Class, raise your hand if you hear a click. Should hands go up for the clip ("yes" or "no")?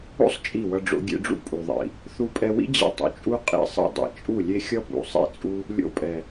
no